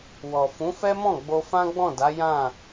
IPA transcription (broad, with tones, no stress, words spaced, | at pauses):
wɔ˨ fũ˨˦fɛ˦mɔ̃˦˨ ɡ͡bo˧fã˦ɡ͡bɔ̃˦˨da˨˦ jã˦˨